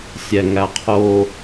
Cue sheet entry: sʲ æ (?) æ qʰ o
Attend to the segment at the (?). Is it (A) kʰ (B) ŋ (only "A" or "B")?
B